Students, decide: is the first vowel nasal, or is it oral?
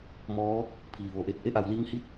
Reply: oral